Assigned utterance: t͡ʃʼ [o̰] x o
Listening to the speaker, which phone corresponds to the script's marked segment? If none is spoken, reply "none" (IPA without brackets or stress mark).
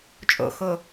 o̰